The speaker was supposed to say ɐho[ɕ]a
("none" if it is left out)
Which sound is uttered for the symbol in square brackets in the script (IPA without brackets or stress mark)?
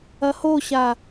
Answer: ɕ